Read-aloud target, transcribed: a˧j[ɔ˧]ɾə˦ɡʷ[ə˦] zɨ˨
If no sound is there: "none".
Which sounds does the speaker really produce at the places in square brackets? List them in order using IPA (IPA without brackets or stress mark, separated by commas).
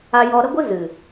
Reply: ɔ˧, ɨ˦